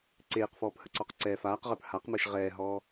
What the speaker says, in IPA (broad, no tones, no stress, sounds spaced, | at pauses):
ǀ eː q f ɔː p h ə ǀ ɔ q ǀ ɛː f aː q ʁ ə˞ p h a q m əː ʃ ʁ ɛː ɦ ɔː